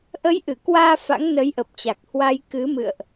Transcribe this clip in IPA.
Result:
ʔə˨˦jʔɨ˧˩kwaː˧ fa̰˧˥ŋnə˨˦jʔə˨˩p̚t͡ɕa˨˩k̚ hwa˧j kɨ˨˦mɨ̰˧˨ə̯ʔ

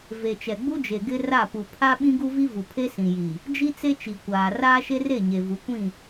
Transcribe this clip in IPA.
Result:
ve˨t͡ʃɛ˨ɡ͡bu˦d͡ʒe˨ ɡɪ˦ra˦˨pu˨ pʰa˦ ɓĩ˦ɡu˦vi˦ vu˨ pʰe˦sĩ˨ji˨ | d͡ʒi˦t͡se˦ t͡ʃi˨ kʷaː˨ raː˦ʃe˦re˦˨ ɲe˨vu˨˦ kʷĩ˦˨

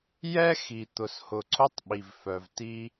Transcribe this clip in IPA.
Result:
jɛ˦ xi˨ t̪ʊ˨shʊ˨ǀʊ˦tˤɓi˨v fœ˨vti˦

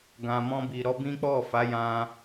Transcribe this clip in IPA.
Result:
ɡã˨mɔ̃˧bi˨ ɾɔ˧bĩ˦k͡pɔ˦˨fa˨˦ jã˧

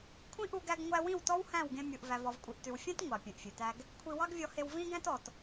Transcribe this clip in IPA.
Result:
kʷʰĩ˦ʔu˧ɡæ˧ɡ ŋʷæ˧wĩ˦˨w tɔ˦whæ̃˦˨w ɡẽ˧mʲu˨ʔ væ˨vɔ˨vkʷʼi˨ʔ tʉ˨wfʲæ̃˦t ŋʷɑ˨pʲẽ˨ʔfʲʉ˨tæ˦ɡ | kʷʰi˧wɑ˦ɡvʲɔ˧he˧w vĩ˦ɡæ̃˦tɔ˨t

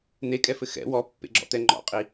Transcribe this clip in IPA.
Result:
n̪ekʼɛfɘ xɛ̰ wɔpːḛɡ͡ǁɔ̰t̪ɛ ŋ͡ǃɔ̰qʼi

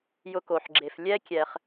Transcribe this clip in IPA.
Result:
jʊ˧ko˨ħɡ͡ǁe˨f lʲɛ˦ kʲɛ˧χ

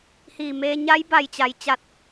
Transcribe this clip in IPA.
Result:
hiː˧˩meː˧ ɲa˧˥jba˧˩jt͡ɕa˩j t͡ɕa˧˩t̚

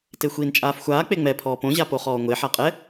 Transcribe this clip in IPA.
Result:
texʷiːnt͡ʃʼaːfxʷaː k͡peŋ͡mɛ pʰɔːpõ ʑapoχɔːŋʷe ħaqʼɛ

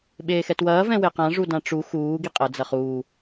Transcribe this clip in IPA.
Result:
ɓeːxɛtwɐː vɛ̃weqã ʐudãʈ͡ʂu xuː ɡiqʼɐ d͡zɐχuː

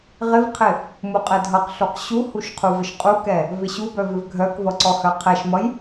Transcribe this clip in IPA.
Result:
ʁɪvqʰɪ | muqʼɛdʱʌqɬuq ɕuhuʃ qʰuvɪʃqʼukɛ | vɪɕubœ vɪvɡʱœkvʌ ǀɔhœqʰɛʃmʌj

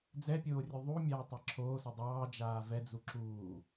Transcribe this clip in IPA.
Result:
d͡zɛpʲoːrʲu ðˤumʲaː tˤɛǁʰoːsʌ dˤɑː d͡ʒaːvɛd͡zu ǁuː

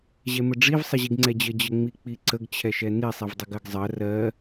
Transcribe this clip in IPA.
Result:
ʑɛməɖ͡ʐiv sˤəʑiɡŋ͡ǀɛd͡ʑə d͡ʑəŋ͡mik͡piǀəɡ t͡ɕʰɛʃɛni sˤivdˤəɡɜɡzˤɜ rɜ

